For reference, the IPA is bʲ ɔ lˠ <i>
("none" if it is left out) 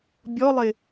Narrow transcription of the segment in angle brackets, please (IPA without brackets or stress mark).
ɪ